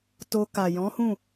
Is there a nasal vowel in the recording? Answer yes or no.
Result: yes